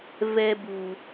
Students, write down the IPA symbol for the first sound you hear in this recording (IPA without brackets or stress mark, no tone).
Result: v